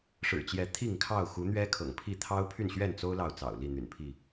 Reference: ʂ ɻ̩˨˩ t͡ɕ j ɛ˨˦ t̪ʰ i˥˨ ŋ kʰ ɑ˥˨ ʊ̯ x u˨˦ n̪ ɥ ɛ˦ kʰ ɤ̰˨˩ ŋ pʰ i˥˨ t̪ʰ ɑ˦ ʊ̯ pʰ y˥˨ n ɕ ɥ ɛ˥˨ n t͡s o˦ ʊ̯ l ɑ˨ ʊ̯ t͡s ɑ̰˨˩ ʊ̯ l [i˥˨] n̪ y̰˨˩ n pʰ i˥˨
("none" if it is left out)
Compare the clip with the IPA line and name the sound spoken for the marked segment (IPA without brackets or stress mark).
i˥˨